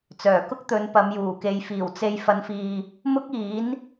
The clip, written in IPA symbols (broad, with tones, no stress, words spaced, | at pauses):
t͡sœː˨˩kʊ˥k̚t̪ɵ˨˧n pɐ˨˧mjuː˨˩ke˨˧jfiː˨˩w t͡se˨j fɐ˨˧nfiː˨ | mʊ˥k̚iː˨˥n